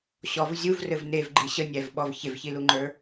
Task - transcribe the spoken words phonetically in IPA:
ɕɔv zʲuvrɘv nevɡ͡ǃi ɕənʲævɓɔv çevçiluŋ͡ǃə˞

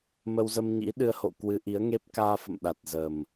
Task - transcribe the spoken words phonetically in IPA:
mə˧wzə˧mɲḭ˧˥ ɗɨ˧ə̯ho̰˧˨ kwɨ˨˦ʔi˨˦ə̯ŋe˦˥p̚kaː˧ fə̰˧˨mɗa˨˩t̚zəː˨˩m

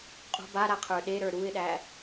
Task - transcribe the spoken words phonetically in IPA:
qʼṳ baɾaqʰə˞ ɗeɾə˞ ɾuɪ̯ɗæ

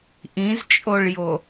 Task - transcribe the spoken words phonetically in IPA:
ʔĩzt͡ʃʼoɭjo

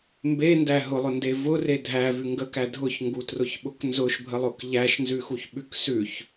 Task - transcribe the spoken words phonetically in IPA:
mbendæ ɦʊlˠʊnde vʊre dʱævʉ ŋɡəkæ dʱʊçŋɡutrʊçɓʊk nzʊʃbʱəlˠʊk ʎæʃnzʉxuçɓʉk sʉç

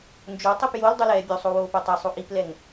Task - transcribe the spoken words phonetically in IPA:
nd͡ʒotˤip jol dˤulɛːbʲosˤo woːpotˤisˤo ʔiplɛŋ

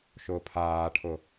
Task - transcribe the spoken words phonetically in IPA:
ʃʊːpʰaːʈʰʊ

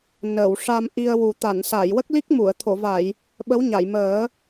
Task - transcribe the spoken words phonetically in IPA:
nəː˨˩˨wʂa˧mʔi˧ə̯wu˨˩ t̪a˨˩˨nsa˨˩˨jwə˦˥k̚li˦˥k̚ mu˨˩˨ə̯t̪ʰo˨˩˨va˨˩˨j | ɓə˧˥wɲa˨˩˨jməː˨˩˦

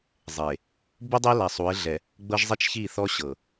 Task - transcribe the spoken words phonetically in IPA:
zˤe˨ | bu˦dˤe˦ la˨sˤu˨˦ɪ̯ɮɛ˨ | ɡ͡bɤ˦ʒzˤi˦t͡ʃ çi˦˨θɔ˦ ɕɤ˨

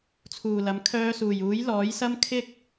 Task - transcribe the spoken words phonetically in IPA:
t͡sʰuː˨˩lɐ˨˥m kʰœː˧suː˨˩j uː˨˥jlɔː˨˥jsɐ˥m kʰɪ˥k̚

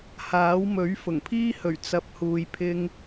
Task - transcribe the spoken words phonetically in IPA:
haː˨˥wmɵ˨˥ɥ fʊ˨˩ŋpʰiː˧hɵ˨˩ɥ t͡sɐ˨p̚ huː˨jpʰɪ˧ŋ

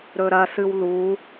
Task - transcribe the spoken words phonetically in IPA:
ɾɵɾɐ sɨwlu

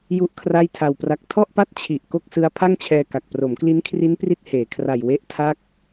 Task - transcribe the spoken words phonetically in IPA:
ju˥˩ʔkʰra˥˩jtʰa˧wpra˦˥k̚ tʰɔ˥˩ʔpa˥˩t̚ t͡ɕʰi˨˩ʔ ko˥˩k̚sɯ˦˥a̯ pʰa˥˩ŋt͡ɕʰɛː˧ka˨˩k̚ pro˩˦mkli˦˥nkʰri˦˥n pri˥˩t̚heː˩˦kʰra˨˩j we˦˥ʔtʰa˦˥k̚

